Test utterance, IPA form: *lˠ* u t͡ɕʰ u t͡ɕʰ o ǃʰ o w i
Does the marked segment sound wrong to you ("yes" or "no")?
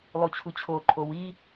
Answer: no